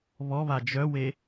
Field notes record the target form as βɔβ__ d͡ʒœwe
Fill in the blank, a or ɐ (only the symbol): a